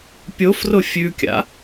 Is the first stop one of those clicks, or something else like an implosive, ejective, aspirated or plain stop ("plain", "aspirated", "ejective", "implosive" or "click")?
plain